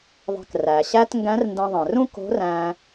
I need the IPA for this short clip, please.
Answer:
ðˤ ɛ̤˧ k r æ˩ ɕ æ˥ t ŋ ɡ æ̃˧˥ r n d ɛ̃˧ ðˤ ɛ̃˩ r ũ˥ k o̤˧˥ r æ̃˧

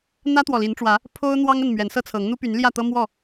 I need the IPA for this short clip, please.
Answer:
n̪ ä˦ t̪ w ɔ˨ l i˨˦ n ʈ͡ʂ w ä˨˦ | pʰ o˦ ʊ̯ n̪ w ɑ˦ ŋ ə˥˨ n m ɥ ɛ˨˦ n s ɤ˦ t͡sʰ ɤ˨˦ ŋ n̪ u˦ p y˨˦ n l j ä˥˨ t̪ ɤ˦ m w ɔ˥˨

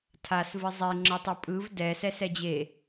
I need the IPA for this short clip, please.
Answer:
tʰ a s v ɨ zˤ e ŋ͡ǁ ə tˤ ɨ pʼ ɯ v d ɛ s ɛ s ɛ d͡ʑ e

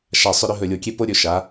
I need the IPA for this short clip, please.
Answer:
ʃ a˦˨ sˤ ʏ˥ ɾ ʏ˥ ɦ ɵ˦˨ lʲ o˦˨ kʲ e˥ p o˥ ɾʲ ɵ˦˨ ʃ a˨˥

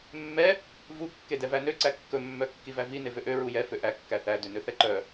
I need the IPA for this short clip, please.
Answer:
mː ɛ | v u kː e d ɛ v æ n ø ǀ æ kː ɵ mː œ kː i v æ v i n e v ø ʔ ø ɹ u j ɛ f ø ʔ æ kː æ θ æ d ø n ø θ ɛ ǃ œ

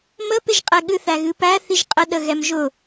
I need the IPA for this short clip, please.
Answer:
m ə p ɪ ʒ qʼ ɛ ɠ ɨ θ æ ɣ ɨ p æ θ i ʒ qʼ ə ɗ ə ɣ ɛ m ʒ ʊ

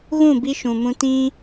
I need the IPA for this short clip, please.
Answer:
ɣ ũ˦˨ b i˦ ʃ ũ˨ m ũ˦ t ĩ˦

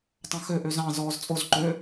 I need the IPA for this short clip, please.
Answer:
tˤ ɑ̃ x ø ʔ ø z ɑ̃ z ɔː z t͡sʼ o z ǃ ø

